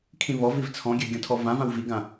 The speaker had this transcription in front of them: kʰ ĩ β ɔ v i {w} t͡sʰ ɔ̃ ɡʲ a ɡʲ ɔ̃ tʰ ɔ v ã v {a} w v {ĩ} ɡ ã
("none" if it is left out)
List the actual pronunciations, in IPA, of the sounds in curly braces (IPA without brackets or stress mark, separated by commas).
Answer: v, ã, i